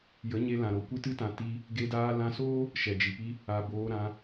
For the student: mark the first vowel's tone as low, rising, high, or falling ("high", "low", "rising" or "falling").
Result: rising